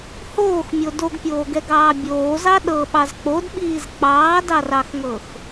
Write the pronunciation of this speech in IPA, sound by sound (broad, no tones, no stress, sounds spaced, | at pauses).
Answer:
h oː x mʲ o d o ɡ pʲ oː ɡ ɛ ɡ ɑː bʲ oː z ɑ ɗ ɤ ɓ ɑ z k͡p o d ɓ iː z k͡p ɑː d ɑ r ɑ x ŋ ɤ x